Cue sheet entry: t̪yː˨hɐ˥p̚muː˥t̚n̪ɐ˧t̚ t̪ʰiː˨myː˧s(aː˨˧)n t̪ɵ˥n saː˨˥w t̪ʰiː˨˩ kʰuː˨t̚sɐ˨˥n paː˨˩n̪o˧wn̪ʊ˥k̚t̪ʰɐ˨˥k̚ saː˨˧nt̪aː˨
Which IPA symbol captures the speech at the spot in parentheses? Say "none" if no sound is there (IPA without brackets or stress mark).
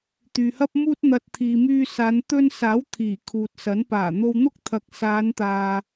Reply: aː˨˧